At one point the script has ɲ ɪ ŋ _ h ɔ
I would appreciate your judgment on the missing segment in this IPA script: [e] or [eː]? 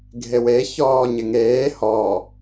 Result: eː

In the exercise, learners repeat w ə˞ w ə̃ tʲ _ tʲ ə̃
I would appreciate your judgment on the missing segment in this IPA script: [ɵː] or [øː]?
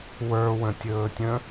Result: ɵː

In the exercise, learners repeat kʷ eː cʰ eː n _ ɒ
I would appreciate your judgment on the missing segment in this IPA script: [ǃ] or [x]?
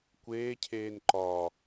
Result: ǃ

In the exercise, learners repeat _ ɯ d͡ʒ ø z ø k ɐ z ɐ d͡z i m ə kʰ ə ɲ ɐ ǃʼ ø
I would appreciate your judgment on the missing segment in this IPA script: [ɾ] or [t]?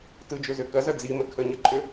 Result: t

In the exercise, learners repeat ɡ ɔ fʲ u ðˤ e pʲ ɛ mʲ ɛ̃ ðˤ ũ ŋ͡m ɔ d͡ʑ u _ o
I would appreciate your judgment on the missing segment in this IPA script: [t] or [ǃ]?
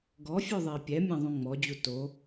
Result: t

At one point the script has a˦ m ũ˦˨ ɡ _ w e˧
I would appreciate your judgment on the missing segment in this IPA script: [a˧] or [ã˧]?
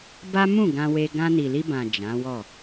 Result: ã˧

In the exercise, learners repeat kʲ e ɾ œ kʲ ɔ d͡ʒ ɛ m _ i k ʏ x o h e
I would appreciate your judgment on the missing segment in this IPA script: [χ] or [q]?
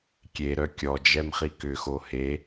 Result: χ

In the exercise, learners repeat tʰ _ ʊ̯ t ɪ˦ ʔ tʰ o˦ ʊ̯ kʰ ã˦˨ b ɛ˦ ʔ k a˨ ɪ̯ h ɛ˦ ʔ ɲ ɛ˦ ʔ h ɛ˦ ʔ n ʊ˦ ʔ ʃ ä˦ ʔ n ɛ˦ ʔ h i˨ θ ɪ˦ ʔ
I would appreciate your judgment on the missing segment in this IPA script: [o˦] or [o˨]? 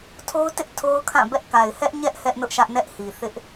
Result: o˦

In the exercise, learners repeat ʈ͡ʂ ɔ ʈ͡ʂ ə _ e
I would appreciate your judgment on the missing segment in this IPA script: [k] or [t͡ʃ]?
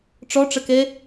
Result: k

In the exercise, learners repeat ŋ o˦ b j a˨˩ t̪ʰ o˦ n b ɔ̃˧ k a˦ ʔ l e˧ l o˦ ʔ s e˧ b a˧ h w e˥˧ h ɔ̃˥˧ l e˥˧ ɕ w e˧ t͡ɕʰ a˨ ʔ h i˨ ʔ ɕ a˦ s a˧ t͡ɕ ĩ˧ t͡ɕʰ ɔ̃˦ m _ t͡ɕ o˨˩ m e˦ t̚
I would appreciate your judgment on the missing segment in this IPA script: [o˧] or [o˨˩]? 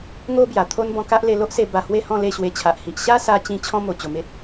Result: o˨˩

